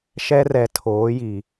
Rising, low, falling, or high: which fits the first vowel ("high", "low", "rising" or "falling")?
high